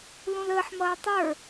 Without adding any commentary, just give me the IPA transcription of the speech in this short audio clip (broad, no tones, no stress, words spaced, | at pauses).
lũləːħmʌː tˤə˞